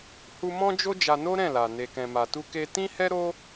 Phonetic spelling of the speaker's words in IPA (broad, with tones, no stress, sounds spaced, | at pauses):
h u˦ m ɔ̃˦ d͡ʒ o˦ d͡ʒ a˧ n o˦ ɾ ɛ̃˦˨ l a˨ n e˨ k ɛ̃˨ m a˨ t u˧ k e˧ t ĩ˦ h ɛ˦ ɾ o˦